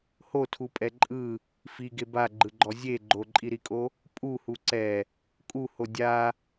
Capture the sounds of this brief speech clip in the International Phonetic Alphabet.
h o tʰ u pʼ ɛ ǃʼ ɯ | f i ɡ e b a ɡ͡ǃ ɯ ɡ͡ǃ ɔ zʲ e ɡ͡ǃ o ǃʼ i ɾ i kʼ o | pʼ u h u ǀ ɛ | kʼ u h o dʲ a

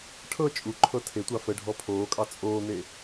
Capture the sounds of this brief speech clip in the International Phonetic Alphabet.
ʈʰ ɤ t͡ʃʼ u ǃʰ ɤ tʰ e tʷ ɑ f ə ɖʱ ɔ pʰ oː kʼ ɑ t͡sʼ oː n̪ e

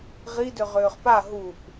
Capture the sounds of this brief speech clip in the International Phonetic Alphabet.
ʁ i d ʏ ʁ ʏː χ p a ɦ u p

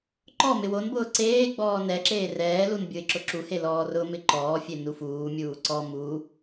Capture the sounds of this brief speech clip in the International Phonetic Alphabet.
ǃ ɔ m ɪ w o n b ʊː ǀ eː ɡ͡b ɔː n ɛ ǁ eː r ɛː l u n bʲ o ɪ̯ ǁ ʊ ǁ u h e l ɔː r ʊ m ɪ ǃ ɔː fʲ e n u f uː mʲ uː ǀ ɔ m u

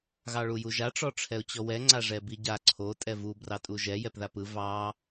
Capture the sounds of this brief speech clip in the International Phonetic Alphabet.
ɣ ɑ ɭ u j u ʒ a ʈ͡ʂ ɔ ʈ͡ʂʰ ɛ ʊ̯ t͡ɕ ɔ w ɛ ŋ͡ǀ a ʐ ɛ b i ɟ a ǀʰ o tʼ ɛ v u b r ɑ tʼ u ʒ ɛ j ɛ p ð a p ɯ v ɑ

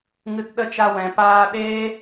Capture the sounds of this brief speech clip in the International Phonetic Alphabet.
ŋ ɨ˧ t ɗ ə˦˨ t͡ʃ a˧ w ɛ̃˨ p aː˧ ɗ eː˦

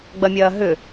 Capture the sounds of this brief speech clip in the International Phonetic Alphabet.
ɡ͡b ɐ mʲ ɐː ɦ ʏ

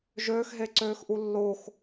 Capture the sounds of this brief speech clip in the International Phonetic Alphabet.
ʒ øː x ɦ e ǀ øː x ʔ u lː o x

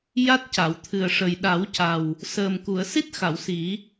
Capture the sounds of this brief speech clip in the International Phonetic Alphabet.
j a˦˥ t̚ c a˨˩˨ w t̪ʰ ɨ˨˩ ə̯ ʂ ə˨˩ j ɗ a˨˩˦ w c a˨˩ w | s əː˨˩ m k u˨˩˨ ə̯ s i˦˥ t̚ x a˨˩˨ w s i˨˩˦

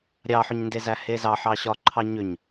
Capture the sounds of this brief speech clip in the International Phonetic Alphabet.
ɾʲ ɑ ħ ʏ ɲ n d e z æ h e z ɑ ħ ɑ ɕ ɒ ǃʰ ɑ ɲ ʏ ɲ

